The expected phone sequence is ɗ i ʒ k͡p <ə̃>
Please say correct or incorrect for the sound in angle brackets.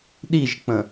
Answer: correct